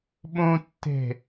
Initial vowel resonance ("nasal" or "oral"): nasal